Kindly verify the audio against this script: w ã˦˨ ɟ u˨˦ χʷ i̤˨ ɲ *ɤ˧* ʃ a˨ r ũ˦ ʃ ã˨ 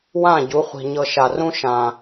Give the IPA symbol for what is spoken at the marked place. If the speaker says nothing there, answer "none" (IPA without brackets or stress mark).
ɤ˧